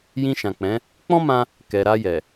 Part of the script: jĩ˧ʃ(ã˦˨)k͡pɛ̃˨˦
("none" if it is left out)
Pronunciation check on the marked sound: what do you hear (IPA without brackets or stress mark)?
ã˨